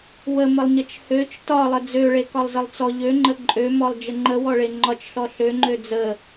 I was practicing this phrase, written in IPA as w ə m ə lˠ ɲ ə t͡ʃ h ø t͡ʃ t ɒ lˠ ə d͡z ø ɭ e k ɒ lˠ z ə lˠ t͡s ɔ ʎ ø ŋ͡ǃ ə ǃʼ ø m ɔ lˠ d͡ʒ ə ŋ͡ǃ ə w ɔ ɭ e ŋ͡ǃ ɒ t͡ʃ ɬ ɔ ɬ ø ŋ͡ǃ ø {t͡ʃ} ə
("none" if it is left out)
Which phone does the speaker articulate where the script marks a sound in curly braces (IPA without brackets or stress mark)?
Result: d͡z